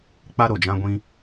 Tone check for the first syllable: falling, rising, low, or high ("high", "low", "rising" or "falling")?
high